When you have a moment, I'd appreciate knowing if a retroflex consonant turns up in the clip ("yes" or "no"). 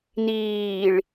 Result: yes